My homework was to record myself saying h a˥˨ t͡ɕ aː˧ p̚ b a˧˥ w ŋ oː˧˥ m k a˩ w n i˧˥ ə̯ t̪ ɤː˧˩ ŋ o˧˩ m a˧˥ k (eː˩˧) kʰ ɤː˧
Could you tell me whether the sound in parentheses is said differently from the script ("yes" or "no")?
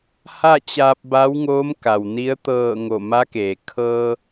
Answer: yes